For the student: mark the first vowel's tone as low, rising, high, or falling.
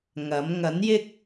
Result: rising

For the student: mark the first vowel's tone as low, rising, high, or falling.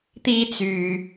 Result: high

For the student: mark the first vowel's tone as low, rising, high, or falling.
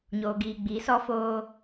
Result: low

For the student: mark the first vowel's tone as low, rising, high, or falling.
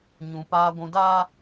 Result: low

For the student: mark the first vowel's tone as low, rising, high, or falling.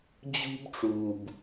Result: high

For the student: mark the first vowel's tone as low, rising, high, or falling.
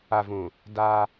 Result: low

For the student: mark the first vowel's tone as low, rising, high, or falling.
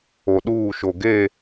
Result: low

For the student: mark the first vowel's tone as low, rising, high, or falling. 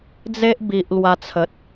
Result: high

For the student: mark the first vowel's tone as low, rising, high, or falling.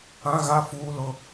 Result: high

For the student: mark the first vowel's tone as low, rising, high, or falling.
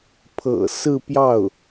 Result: low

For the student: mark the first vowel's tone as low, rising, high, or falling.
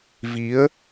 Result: rising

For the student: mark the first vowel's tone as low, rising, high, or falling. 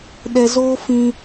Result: low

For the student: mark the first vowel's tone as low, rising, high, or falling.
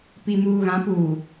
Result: low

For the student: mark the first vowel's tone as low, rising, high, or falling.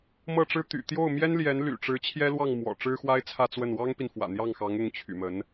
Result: falling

